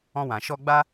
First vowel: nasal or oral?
nasal